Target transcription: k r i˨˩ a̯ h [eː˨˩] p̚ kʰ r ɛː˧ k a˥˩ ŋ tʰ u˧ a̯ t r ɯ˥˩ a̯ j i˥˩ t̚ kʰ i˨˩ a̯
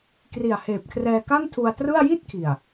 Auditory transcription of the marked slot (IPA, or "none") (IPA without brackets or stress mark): eː˨˩